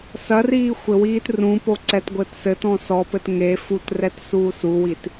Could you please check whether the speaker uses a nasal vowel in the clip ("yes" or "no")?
yes